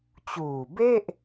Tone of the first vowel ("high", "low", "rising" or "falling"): low